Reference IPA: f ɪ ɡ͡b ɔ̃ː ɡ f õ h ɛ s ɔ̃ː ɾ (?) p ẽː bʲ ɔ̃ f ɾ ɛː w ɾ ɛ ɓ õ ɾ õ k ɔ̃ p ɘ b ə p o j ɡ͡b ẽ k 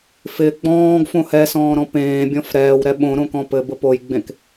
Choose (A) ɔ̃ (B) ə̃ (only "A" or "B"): A